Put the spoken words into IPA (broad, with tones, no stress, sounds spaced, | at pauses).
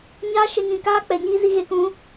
ɲ aː˦ ʃ e˧ ŋ ĩ˨ k aː˦ k͡p ɛ˨ ɲ iː˦ z i˧ ɣ e˨ k ũ˨˦